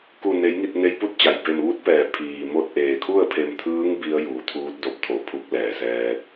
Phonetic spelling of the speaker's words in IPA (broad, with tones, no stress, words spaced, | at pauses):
ku˧˩ ne˩˧jŋi˧˩t̚ ne˧˥jpu˥˨t̚t͡ɕa˩j be˧˩mʋu˧˥t̚pɛː˩ pʰiː˩mo˧t̚ ʔeː˩kʰu˥˨ə̯pʰe˧˩mt̪ʰɯː˧˥ŋ bi˧˥ə̯ juː˩˧t̪ʰuː˧˥t̚do˧p̚t̪ʰo˩˧ pʰu˧˥k̚lɛː˩sɛː˧t̚